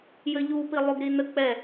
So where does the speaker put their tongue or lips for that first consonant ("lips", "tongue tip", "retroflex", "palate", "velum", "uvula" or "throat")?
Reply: palate